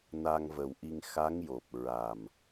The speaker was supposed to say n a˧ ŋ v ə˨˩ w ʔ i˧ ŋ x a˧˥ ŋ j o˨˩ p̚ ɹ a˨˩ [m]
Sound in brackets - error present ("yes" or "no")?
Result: no